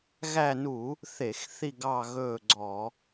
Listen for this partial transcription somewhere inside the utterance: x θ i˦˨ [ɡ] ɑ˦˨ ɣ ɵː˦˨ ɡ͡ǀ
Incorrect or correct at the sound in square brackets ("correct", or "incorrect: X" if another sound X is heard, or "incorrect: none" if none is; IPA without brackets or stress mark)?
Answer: correct